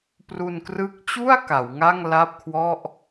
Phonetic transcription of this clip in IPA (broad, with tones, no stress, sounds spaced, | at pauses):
p r u˧ n k r ɯ˦˥ k̚ t͡ɕ u˥˩ a̯ k a˩˦ w ŋ a˥˩ ŋ l a˥˩ p̚ kʰ w ɔ˥˩ ʔ